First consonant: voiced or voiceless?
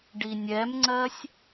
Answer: voiced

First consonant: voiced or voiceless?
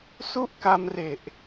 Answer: voiceless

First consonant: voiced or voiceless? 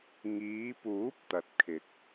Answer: voiced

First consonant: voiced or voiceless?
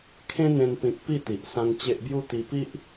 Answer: voiceless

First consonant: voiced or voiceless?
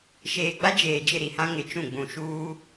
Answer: voiceless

